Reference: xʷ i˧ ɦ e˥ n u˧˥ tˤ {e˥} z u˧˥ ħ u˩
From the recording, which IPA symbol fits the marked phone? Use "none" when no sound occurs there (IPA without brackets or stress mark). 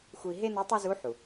e˥